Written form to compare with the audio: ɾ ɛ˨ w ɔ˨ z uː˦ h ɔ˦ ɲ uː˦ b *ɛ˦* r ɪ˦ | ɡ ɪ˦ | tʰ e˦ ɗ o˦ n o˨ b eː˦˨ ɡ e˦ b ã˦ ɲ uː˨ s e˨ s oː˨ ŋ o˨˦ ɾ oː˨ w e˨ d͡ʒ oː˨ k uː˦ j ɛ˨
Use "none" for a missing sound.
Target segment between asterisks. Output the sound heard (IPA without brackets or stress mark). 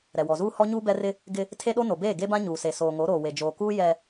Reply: ɛ˦